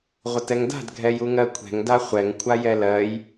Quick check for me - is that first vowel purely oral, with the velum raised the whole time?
yes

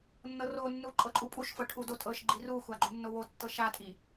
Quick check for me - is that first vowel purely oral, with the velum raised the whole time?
yes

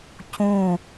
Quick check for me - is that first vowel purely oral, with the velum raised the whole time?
no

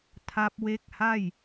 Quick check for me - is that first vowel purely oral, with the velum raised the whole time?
yes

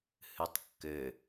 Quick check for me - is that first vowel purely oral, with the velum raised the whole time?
yes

